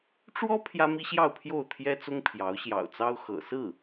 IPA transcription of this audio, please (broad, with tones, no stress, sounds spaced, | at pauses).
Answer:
ʈ͡ʂ w ɔ˥ pʰ j ä˥ m i˥ ɕ j ɑ˥˧ ʊ̯ pʰ j o˥˩ ʊ̯ t̪ʰ j ɛ˥ t͡s ʊ˥ ŋ pʰ j ɑ˧˥ ʊ̯ ɕ j ɑ̰˨˩ ʊ̯ t͡s ɑ˥ ʊ̯ x ɤ̰˨˩ s ɹ̩˥˩